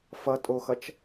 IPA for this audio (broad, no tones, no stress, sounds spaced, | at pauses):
f ʌ tʼ o x ʌ t͡ʃ